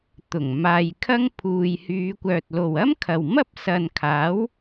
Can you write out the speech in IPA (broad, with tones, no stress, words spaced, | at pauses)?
t̪ʊ˨˩ŋ maː˧jkʰɐ˥ŋ pʰuː˨jhyː˨˧kʷœː˨t̚ lo˨wɐ˥mkʰɐ˨wmɐ˥p̚ sɐ˨nkʰaː˨˥w